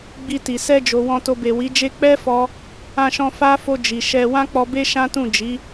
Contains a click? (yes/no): no